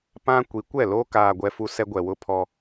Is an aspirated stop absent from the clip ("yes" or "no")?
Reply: no